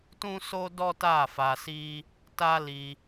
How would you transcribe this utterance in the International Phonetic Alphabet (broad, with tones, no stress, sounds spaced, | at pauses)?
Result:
t ũ˦ s o˦ d ɔ˦ t a˦˨ f a˧ s i˦ | t a˦ l i˧